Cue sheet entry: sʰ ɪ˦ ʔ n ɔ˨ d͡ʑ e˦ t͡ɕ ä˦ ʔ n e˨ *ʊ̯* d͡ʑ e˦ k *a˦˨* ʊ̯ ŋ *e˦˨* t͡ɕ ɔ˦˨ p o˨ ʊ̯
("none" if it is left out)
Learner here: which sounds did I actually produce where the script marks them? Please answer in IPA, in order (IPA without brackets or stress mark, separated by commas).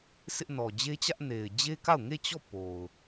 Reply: ɪ̯, a˦˨, e˦˨